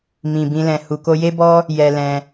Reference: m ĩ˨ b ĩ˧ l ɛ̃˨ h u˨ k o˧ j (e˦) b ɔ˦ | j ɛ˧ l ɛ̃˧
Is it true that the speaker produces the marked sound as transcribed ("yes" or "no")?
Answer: yes